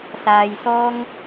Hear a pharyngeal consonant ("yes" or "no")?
no